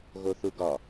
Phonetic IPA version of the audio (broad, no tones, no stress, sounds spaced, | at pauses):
ɣ o θ u ɡ ɒ